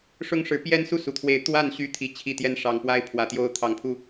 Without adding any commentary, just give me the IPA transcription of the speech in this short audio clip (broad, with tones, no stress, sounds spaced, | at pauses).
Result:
ʂ ʊ˦ ŋ ʂ ɻ̩˨˦ p j ɛ˦ n s u˥˨ s u˨˩ t̪ʰ w e˨˦ ɪ̯ t̪ w a˥˨ n ɕ y˦ t̪ʰ i˨˩ t͡ɕʰ i˥˨ t̪ j ɛ˥˨ n ʂ ɑ˨˩ ŋ p w a˦ ɪ̯ pʰ w ä˨˩ t̪ j o˦ ʊ̯ t̪ʰ ɑ˨˦ ŋ pʰ u˥˨